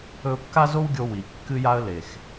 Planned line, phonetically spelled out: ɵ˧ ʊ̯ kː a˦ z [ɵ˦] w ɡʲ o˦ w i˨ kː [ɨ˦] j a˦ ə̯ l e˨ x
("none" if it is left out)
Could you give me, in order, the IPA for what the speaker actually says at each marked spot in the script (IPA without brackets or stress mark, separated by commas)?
o˦, ɨ˦